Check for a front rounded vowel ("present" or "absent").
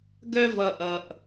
present